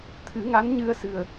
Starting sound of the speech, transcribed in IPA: t̪ʰ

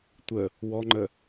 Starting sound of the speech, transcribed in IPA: tʷ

